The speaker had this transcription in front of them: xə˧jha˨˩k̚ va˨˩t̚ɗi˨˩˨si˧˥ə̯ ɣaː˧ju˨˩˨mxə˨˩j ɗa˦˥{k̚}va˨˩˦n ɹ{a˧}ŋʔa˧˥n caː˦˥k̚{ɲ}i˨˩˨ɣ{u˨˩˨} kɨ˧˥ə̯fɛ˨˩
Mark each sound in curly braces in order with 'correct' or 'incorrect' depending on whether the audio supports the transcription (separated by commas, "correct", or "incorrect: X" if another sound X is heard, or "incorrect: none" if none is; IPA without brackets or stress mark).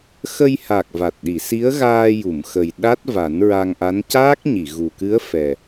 incorrect: t̚, correct, correct, incorrect: u˨˩